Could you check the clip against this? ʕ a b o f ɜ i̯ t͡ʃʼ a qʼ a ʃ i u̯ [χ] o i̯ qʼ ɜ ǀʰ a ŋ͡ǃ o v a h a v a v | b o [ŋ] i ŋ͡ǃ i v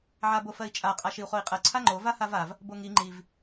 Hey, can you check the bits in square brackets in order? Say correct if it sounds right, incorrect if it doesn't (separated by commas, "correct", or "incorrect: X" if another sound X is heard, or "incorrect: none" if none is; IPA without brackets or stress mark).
correct, correct